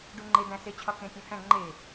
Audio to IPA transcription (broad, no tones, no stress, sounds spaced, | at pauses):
ɖ u ŋ͡ǃ e d̪ æ̃ s e t͡ɕʰ ɒ k ẽ tʲ õ h æ̃ ŋ͡ǃ e